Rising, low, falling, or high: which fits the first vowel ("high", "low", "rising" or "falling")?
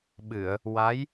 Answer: low